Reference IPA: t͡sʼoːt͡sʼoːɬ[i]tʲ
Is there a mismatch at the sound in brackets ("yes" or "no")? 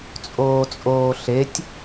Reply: yes